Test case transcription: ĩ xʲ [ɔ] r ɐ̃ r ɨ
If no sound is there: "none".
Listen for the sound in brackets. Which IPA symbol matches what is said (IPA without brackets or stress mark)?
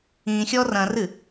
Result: ɔ